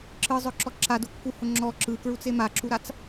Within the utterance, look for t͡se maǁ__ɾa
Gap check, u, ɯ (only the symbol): u